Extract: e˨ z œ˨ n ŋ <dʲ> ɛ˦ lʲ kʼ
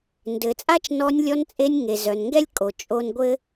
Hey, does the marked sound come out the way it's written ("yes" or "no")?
no